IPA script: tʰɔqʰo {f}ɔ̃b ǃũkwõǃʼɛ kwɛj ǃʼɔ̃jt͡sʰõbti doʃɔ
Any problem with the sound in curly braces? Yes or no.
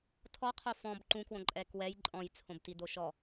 no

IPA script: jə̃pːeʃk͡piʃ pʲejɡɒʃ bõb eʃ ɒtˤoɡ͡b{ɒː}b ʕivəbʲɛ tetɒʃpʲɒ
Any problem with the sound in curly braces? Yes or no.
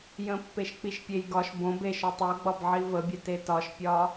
yes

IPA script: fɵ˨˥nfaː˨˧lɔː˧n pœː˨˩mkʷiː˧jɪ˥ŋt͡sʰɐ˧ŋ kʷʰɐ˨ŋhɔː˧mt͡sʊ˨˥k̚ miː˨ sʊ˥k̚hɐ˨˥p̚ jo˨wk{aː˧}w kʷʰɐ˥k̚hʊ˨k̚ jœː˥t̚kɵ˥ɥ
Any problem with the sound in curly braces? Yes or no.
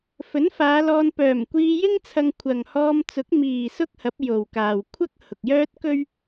yes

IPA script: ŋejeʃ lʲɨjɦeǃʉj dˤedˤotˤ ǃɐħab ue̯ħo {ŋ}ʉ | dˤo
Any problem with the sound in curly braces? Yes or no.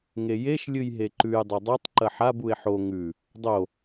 no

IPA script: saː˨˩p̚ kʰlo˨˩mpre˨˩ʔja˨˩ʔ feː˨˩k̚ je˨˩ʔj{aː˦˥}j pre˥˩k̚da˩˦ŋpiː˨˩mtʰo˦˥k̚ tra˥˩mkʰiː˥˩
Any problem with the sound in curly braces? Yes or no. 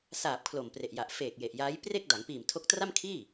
no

